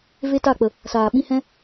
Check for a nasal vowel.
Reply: present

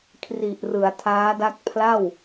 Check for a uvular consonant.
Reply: absent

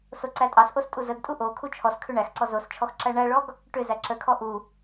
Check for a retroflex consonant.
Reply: present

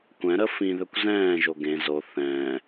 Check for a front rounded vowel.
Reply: present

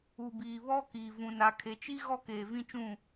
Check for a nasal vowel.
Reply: present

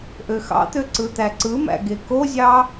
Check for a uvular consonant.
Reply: absent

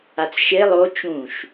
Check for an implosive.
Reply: absent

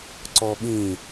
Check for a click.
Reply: present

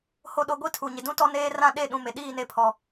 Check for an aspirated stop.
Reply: present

